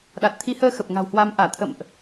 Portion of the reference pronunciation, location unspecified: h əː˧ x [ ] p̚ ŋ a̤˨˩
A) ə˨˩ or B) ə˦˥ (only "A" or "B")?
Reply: A